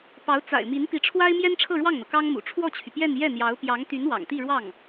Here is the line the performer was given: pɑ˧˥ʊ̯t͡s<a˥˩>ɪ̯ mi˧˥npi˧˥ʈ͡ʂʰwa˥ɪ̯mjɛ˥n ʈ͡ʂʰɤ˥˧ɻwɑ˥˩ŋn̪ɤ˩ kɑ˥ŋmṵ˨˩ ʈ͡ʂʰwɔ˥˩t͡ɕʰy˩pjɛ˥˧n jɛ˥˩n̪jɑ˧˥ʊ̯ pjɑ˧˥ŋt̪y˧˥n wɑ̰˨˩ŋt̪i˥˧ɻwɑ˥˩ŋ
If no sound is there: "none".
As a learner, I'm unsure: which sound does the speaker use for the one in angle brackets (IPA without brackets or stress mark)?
a̰˨˩